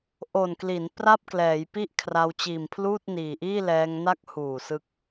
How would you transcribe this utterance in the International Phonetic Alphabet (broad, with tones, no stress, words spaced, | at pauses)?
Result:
ʔo˨˩nkli˩˦n pra˥˩p̚klɛː˩˦jpi˥˩ʔkʰra˧w t͡ɕiː˨˩mpʰluː˥˩t̚niː˨˩ʔiː˥˩ lɛː˧ŋna˦˥k̚huː˨˩ sɯ˦˥k̚